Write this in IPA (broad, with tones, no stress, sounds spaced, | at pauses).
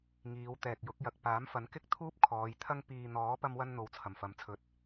ŋ iː˨˧ w t̪ ɛː˨ k̚ j ʊ˨˥ k̚ j ɐ˨ k̚ p aː˨˥ m f ɐ˨˥ n k ɪ˥ k̚ t̪ʰ uː˥ p̚ kʰ ɔː˨˧ j t̪ʰ ɐ˥ ŋ p iː˨ n̪ ɔː˨˥ p ɐ˥ m w ɐ˥ n n̪ o˧ w t͡sʰ ɐ˨˩ m f ɐ˨˧ m t͡sʰ ɵ˨˥ t̚